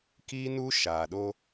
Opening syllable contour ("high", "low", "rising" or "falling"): high